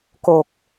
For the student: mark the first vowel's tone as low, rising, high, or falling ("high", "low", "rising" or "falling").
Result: low